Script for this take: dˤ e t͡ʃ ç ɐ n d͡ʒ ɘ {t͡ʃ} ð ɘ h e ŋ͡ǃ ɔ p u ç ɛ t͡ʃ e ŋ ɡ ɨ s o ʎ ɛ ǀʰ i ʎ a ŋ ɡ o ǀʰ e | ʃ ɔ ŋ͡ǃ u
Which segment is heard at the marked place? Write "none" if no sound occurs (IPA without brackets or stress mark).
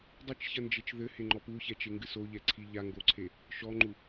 t͡ʃ